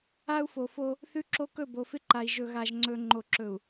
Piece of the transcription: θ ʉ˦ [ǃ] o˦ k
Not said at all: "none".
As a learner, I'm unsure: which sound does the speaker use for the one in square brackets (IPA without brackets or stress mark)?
ǁ